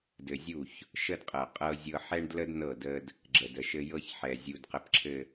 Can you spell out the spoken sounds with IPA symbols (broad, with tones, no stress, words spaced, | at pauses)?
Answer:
dɘ˨zʲu˦˨ç | ʃə˦dqʼɤ˨qʼɤ˦zʲɤ˦ ħɛ˦ɳdlə˦d nɤ˦˨də˦d | ɡ͡ǁə˨də˨ʃɘ˦ jɤ˦çħɛ˨ zʲu˨dqə˨pǁʰɘ˨